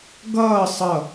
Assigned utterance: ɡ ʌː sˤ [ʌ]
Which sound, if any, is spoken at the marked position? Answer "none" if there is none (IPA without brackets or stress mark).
ʌ